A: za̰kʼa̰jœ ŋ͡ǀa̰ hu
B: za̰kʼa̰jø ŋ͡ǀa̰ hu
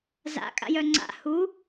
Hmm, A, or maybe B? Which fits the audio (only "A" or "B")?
A